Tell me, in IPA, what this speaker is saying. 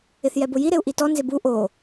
ɪ θ j ɛ b ʊ j i ɾ e u̯ ʔ i t ɔ n z ɪ b u ʔ o

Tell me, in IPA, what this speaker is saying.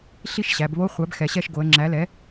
ɬ i˦˨ ʃ ɕ æ˩˧ b β o˧˥˧ χʷ æ˩˥ b x ɛ˩˧ ɕ ɛ˦˨ ʃ ɡ o˩˧ ə̯ ŋ͡ǁ æ˩˥ l ɛ˩˥

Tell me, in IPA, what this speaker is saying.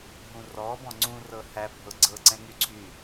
ɦ ũ r ɔ b ɔ̃ ŋ͡ǀ ũ r ɤ h æ bʱ ɤ ɡ͡ǀ ɤ ǀ ɛ̃ ŋ y ǀʰ y

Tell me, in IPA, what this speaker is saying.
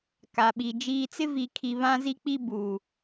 k a˨ ɓ i˨ d͡ʒ iː˨ t͡s ɪ˦ v i˨ kʰ i˨ β ã˦ z i˦ k͡p i˦ b uː˨

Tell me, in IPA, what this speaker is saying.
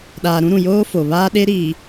ɗ aː˨ ɾ ũ˦ ɾ ũ˨ j oː˦ f o˨ β aː˦ ɗ e˦ ɾ iː˨

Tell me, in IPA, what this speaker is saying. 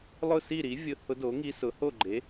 lˠ ʊ˥˨ s i˥˨ ɾ i˩˥ vʲ ʊ˧˥ h ʊ˧˥ d o˩˥ ŋ i˧˥ s ʊ˩˥ h o˥˨ ɡ͡ǃ e˩˥

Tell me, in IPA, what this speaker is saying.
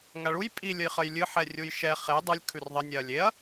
ŋ a ɭ u j pʼ i lʲ ə j χ ə j lʲ ɨ ħ ɛ rʲ u j ʃ ɛ χ e dˤ ɨ lʲ kʰ ʉ r ðˤ ə nʲ ɛ ɐ̯ lʲ e ɐ̯

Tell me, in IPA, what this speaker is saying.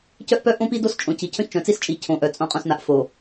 c œ˦ ʔ p œ˦ ʔ õ˦ p i˦ d o˦ s t͡ʃʼ õ˨ c i˨ cʰ œ̃˦ ç t͡ʃ œ̃˨ t͡s i˦ s t͡ʃʼ i˨ cʰ õ˨ ʔ œ˨ t͡sʼ õ˨ qʼ õ˨ s n a˨ ʔ f o˨

